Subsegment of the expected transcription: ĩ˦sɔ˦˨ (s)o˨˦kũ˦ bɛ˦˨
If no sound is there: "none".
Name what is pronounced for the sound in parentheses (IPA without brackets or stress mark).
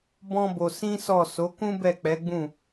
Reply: s